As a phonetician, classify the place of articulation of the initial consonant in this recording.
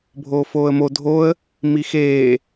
labial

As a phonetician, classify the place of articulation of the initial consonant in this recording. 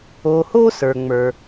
glottal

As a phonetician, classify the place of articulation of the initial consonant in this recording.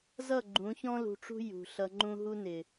alveolar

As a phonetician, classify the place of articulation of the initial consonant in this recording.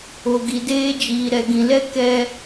velar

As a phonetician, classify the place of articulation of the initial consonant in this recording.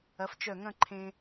labial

